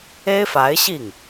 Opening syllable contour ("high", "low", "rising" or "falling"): high